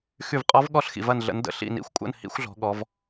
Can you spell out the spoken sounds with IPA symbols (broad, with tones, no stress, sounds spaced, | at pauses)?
x y˧˩ v qʼ ɔ˧˥ v ɠ ɔ˥˨ ɬ x ḭ˩ v ɐ˧˩ n ɮ ə̰˩˧ n d ə̰˩˧ ɬ ḭ˧˩ n ḭ˩˧ xʷ kʷʼ ə̰˥˨ n h ḭ˧˥ xʷ ɮ ɔ̤˩˧ ɠ ɔ˩˧ v